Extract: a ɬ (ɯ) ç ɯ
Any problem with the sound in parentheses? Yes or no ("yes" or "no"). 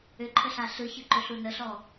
no